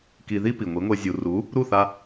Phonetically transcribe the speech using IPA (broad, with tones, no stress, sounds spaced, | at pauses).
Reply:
k i˧ ð i˥ p i˩ ŋʷ i˩˥ ŋʷ e˧ zʲ u˩ r u˩˥ | ɾ u˥˩ θ a˧